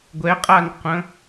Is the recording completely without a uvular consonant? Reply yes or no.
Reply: no